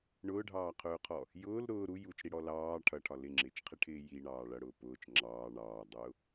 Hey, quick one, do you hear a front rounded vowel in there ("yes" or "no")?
no